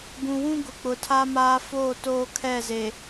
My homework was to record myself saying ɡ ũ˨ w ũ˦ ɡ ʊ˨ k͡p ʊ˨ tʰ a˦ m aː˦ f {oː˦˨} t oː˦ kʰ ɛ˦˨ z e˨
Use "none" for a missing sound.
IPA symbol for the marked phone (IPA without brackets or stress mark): oː˦˨